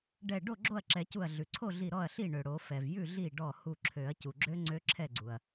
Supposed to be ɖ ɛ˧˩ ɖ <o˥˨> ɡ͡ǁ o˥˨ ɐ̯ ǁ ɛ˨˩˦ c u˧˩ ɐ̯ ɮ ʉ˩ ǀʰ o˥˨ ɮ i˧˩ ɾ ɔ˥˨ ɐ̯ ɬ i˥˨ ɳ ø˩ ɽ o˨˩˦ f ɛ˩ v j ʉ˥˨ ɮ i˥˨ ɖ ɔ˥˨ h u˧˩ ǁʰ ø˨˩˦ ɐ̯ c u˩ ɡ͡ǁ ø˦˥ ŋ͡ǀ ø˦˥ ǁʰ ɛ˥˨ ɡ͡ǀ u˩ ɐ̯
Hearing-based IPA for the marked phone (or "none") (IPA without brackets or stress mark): o˥˨